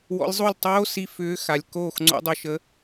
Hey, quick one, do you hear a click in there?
yes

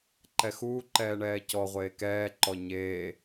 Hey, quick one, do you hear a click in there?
yes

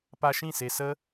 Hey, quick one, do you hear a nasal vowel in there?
yes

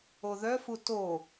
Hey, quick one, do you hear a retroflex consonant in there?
no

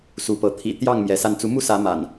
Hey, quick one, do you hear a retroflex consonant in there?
no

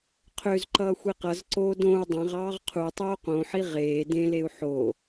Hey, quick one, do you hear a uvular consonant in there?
yes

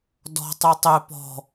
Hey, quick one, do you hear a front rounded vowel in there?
yes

